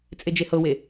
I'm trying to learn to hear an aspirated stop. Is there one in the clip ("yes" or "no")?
no